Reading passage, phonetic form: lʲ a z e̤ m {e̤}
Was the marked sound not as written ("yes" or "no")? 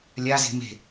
no